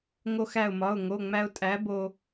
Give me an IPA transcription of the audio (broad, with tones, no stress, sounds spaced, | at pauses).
ŋ o˧ x æ˧˩ ʊ̯ m ɒ˩˧˩ ʊ̯ ŋ o˩˧˩ ŋ͡m æ˧ ʊ̯ tʼ æ˨˥ b o˧